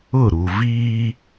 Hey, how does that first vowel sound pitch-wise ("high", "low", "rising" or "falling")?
falling